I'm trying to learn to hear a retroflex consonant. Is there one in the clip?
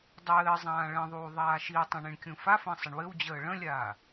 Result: yes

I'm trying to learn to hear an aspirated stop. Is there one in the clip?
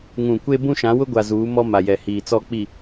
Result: no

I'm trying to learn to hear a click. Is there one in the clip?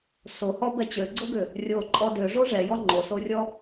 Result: yes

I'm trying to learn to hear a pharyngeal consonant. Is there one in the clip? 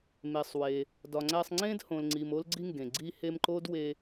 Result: no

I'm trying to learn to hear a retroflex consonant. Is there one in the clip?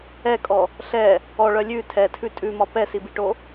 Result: yes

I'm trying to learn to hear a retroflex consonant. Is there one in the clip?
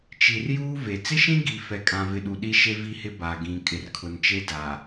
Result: no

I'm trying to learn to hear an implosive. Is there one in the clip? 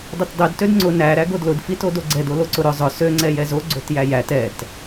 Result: no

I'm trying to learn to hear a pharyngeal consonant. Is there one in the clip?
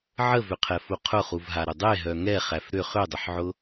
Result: yes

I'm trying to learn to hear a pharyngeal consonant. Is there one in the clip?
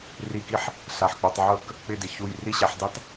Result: yes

